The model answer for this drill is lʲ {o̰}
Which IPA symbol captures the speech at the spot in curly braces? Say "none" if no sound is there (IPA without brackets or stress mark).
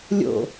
o̰